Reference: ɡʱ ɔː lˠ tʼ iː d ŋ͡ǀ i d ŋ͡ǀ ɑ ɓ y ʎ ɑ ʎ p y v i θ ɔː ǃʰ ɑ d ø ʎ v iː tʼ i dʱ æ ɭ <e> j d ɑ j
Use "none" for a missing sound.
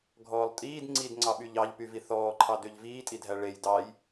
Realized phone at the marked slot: e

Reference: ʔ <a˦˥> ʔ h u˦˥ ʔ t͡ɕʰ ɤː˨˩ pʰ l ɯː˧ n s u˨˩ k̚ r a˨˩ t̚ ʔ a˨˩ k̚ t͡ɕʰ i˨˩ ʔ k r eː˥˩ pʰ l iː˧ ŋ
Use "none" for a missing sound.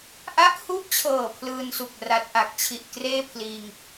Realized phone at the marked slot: a˦˥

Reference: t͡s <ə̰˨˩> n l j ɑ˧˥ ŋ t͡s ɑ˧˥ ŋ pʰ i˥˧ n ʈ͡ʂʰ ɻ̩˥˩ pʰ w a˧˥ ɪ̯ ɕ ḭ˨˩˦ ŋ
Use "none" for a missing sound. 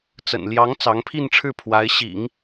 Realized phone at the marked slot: ə̰˨˩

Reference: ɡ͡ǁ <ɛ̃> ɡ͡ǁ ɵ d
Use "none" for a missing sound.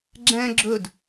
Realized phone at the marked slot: ɛ̃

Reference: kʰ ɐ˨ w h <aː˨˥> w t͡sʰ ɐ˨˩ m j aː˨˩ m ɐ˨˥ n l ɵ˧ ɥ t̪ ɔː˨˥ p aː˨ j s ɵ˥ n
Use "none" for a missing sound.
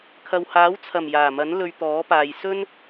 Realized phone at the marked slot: aː˨˥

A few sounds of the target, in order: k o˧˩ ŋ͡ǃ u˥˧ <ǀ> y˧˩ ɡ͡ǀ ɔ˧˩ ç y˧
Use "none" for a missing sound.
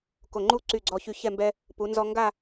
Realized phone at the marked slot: ǀ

